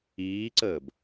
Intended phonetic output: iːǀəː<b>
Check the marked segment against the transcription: correct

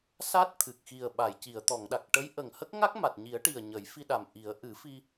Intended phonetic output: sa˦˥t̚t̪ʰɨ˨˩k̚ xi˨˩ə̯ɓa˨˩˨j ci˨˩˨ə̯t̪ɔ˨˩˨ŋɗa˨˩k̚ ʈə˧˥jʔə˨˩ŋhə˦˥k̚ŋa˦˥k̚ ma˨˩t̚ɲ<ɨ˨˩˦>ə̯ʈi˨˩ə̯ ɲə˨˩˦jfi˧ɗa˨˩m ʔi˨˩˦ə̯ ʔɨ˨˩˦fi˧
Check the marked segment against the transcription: incorrect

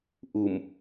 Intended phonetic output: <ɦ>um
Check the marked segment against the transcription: incorrect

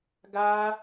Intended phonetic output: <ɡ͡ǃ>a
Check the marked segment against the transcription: incorrect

